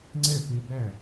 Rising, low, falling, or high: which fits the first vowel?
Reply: falling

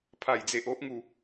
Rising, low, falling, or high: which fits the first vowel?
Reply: low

